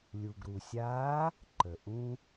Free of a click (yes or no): no